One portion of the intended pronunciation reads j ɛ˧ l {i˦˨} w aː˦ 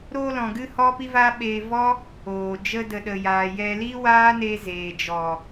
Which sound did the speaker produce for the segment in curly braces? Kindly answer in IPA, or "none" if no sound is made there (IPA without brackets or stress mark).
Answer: i˦